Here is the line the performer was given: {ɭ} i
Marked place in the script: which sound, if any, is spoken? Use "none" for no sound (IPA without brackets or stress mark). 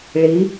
ɭ